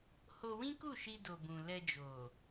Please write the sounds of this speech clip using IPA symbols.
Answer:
h o˧ w ĩ˦ k u˦˨ ʃ i˧ d o˨ b ũ˨ l ɛ˧ d͡ʒ o˨

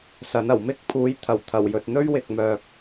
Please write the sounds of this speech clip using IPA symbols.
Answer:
s ɐ˨˥ n ɐ˨˩ w m ɪ˥ k̚ pʰ uː˨˥ j t̪ʰ ɐ˨˩ w t̪ʰ ɐ˨˩ w j ɵ˨ t̚ n̪ ɵ˥ ɥ w ɪ˨ k̚ m œː˨ k̚

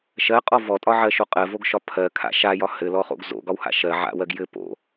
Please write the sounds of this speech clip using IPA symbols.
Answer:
ʃ ɜ qʼ ɔ v ɔ tʼ ɒ ʕ ɜ ʃ o qʼ ɜ v o ɡ ʃ ɒ pʰ ɜ kʰ a̰ ʃ a j ɒ h ɘ l ɔ χ o̰ ɡ z o̰ ɡ ɒ w h a̰ ʃ ɜ ʕ a̰ w ɜ ɡ j ɘ p o̰

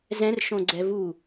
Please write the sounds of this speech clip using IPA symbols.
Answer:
z ɛ̃ r ʃ õ ɡ͡ǀ ɛ v u

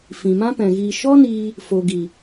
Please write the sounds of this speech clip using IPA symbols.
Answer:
f ĩ˨ m ã˦ p ɛ̃˨ ɣ iː˧ ʃ ɔ˦ n iː˧ | f o˨ ɡ i˨

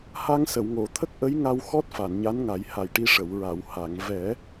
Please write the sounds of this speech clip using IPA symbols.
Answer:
h a˧ ŋ s ə˨˩˨ w ŋ o˨˩˨ t̪ʰ ə˦˥ k̚ ʔ ə˧˥ j ŋ a˧ w x ɔ˦˥ t̚ f a˨˩˨ n ɲ a˧˥ n ŋ a˨˩˦ j h a˨˩ j ʈ i˧ ʂ ə˨˩˨ w ɹ a˨˩˨ w h a˨˩˨ ŋ v ɛ˨˩˦

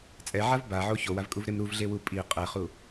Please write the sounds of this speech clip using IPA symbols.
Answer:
t͡sʼ ɛ ʕ a v b a ʕ o ç o w a v kʼ u v ɾ e m ɾ u v ɮ e w u pʼ i qʼ ɛ χ u

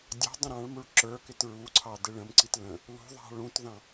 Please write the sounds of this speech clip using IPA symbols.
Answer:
dʲ ɑ̤ dˤ ə̃ ɾ ɑ̃ ɭ m u ɭ ǁ ə˞ k ɪ t ɹ u ǀʰ ɑ d ɪ ɭ ə̃ m ǀ i t l ə̃ | l ṳ ðˤ ɑ̤ ɭ ũ t ð ɑ̃

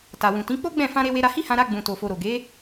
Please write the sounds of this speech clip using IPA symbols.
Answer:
t a˨ w ũ˨ t ĩ˨˦ k͡p o˦ ɡ͡b ɛ̃˦˨ f ã˧ ɾ e˧ w e˧ ɾ a˧ h i˦ h ã˧ ɾ a˧ ɡ͡b ũ˨ t o˨ f o˨ ɾ o˨ ɡ e˨˦

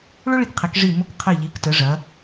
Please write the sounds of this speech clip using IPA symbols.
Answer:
ɭ ʊ˥ ɭ i˧ k qʰ e˩˧ k ʐ i˧˩ m ʊ˧ k qʰ ɘ˧˩ ʎ i˩˧ k t ə˩˧ ʐ ɐ˩˧

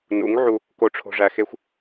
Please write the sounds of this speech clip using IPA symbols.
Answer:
n ṵ˨˦ ŋ ʕ u˧ | k o˨ ʈ͡ʂʰ o̤˨ ʐ æ˨ x e˧ xʷ

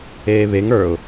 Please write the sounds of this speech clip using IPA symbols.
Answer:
eː β e ŋ ə˞ ʊ̯

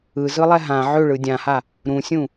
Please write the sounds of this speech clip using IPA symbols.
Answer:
ɯ z ɯ lˠ ɛ ɦ ã ʕ ʏ ɭ ɯ dʲ ã h a | ɾ ũ sʲ ũ

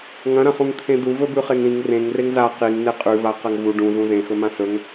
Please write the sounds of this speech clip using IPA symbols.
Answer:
ŋ ɐ̃ ɾ ɐ̃ χ ũ ŋ t̪ʰ ẽ d̪ u v ɵ b ʉ χ e ŋ ɾ ĩ ŋ r ẽ ŋ r e ŋ z a q i ŋ n e qʼ ʉ v a q ɐ ŋ v u ɖ ũ z ũ z ẽ x ɵ m ã s ɵ ŋ

